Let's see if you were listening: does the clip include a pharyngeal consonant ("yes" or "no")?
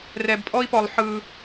yes